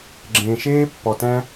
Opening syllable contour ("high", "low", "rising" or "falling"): low